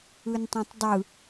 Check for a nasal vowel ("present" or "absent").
present